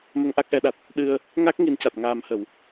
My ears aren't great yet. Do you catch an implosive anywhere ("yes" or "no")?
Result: yes